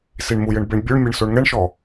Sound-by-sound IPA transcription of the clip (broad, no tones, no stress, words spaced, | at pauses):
siɳmujɘɳ beɳbʲuɳmʲeɳ soɳŋɛɳʃɔ